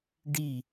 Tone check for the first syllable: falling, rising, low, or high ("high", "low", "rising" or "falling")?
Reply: falling